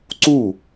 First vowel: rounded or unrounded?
rounded